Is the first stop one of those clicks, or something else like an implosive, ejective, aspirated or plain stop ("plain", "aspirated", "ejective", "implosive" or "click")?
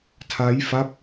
aspirated